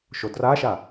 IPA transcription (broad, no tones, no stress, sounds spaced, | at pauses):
ʃ o d r a ʃ a